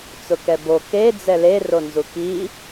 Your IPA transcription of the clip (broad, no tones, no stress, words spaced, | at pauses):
t͡sʊkɛbo ke d͡zɛle ronzuki